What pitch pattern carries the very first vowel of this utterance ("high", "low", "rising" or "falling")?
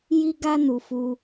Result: high